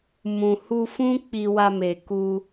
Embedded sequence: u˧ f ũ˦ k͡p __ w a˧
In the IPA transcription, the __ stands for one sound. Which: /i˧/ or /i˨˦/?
i˧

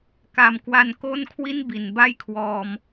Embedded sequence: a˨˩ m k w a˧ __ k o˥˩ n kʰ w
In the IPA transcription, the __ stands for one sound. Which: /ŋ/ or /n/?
n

